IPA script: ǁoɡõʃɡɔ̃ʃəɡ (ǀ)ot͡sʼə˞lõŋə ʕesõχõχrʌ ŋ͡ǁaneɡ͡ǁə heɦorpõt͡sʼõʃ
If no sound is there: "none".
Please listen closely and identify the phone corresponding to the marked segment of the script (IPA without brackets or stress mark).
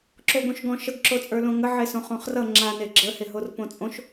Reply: ǁ